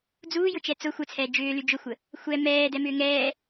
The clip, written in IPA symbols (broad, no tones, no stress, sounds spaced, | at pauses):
d͡z uː j ʊ t͡ʃ ɛ t͡s ʊ xʷ ə t͡sʰ ɛː d͡ʒ ʏː l y d͡ʒ ʊ xʷ ə | xʷ ɛ m ɛː d ɛ m ʏː ŋ ɛː